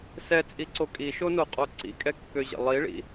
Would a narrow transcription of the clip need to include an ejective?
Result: yes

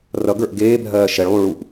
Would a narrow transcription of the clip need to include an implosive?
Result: no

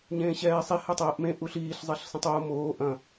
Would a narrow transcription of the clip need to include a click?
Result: no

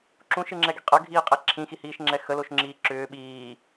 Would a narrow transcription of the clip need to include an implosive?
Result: yes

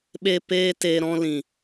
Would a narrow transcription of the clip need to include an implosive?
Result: yes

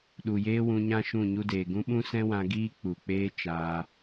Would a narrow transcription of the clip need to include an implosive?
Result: yes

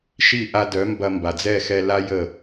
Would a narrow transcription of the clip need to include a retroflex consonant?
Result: no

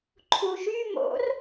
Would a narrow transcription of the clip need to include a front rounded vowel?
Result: yes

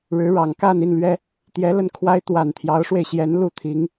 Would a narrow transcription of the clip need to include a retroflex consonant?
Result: yes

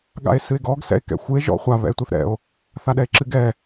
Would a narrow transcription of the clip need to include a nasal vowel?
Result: no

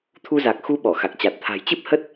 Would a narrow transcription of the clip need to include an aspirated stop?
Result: yes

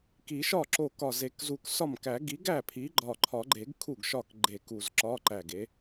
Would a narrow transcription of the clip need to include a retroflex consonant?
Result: no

